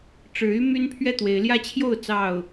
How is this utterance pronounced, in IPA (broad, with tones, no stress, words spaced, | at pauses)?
ʈ͡ʂɻ̩˨˦ y˦ my˦n pʰɥɛ˥˨t̪we˨˦ɪ̯ ljä˦t͡ɕʰjo˥˨ʊ̯ t͡sɑ˥˨ʊ̯